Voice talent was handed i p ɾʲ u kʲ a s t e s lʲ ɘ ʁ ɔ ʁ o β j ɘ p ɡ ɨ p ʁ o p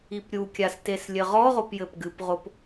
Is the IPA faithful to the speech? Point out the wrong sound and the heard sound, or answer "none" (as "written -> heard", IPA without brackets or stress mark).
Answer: β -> p